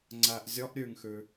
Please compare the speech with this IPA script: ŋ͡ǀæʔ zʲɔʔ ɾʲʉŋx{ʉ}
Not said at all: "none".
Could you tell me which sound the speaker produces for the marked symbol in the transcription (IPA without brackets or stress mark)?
ʉ